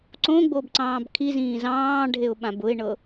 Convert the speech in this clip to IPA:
ǀõɡ͡bobǀɑ̃ːb kʰizĩː zɑ̃ːɖʱeʊ̯ɓãb ʊɪ̯ɳɤ

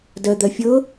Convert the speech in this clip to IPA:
dɜd̪ɜfʲɤ

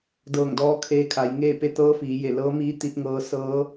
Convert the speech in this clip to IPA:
dɤː˧˩ŋdɔː˧ kʰeː˧kʰa˩˧jŋeː˥˨pe˥˨ t̪ɤː˧˥fiː˩˧ je˧˩lɤː˧˥ miː˧˥ t̪i˧t̚ŋɤː˧sɤː˧˥

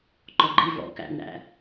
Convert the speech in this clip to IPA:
ǃɔɡ͡ǃi vɔ̰ kæ̰nɾæ̰

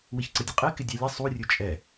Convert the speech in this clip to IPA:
wɪçǀədʲəqʼe kɪdʲalʲɐ sˤu rʲɵt͡ʃʼɛ

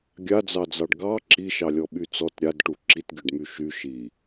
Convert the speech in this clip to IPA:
ɡʲad͡zɑd͡zɑɖ ɡɑ ǁiʃɑlʲɔɓy t͡sɔt ɾʲadʈu ǁitɡʲœɖmy ʃy ʃi

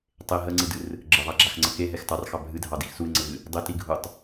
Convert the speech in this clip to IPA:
tˤe ɦəŋ͡ǀɨdɨr | ɡ͡ǁəðˤaɡ͡ǁaxŋ͡ǀə keɦɛx tɑrxɑ bʱɨdʱɑdix suɪ̯ŋ͡ǀəvɨ | dˤɪtiɡʱutˤ

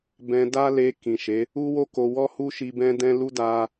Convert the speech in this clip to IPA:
bɛ̃˧ da˦le˧ kĩ˨ʃe˨˦ | u˦wo˦ ko˧ wɔ˦hu˦ ʃi˧bɛ̃˦dɛ̃˦ lu˦da˧

